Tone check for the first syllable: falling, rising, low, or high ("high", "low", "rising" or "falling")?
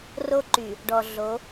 high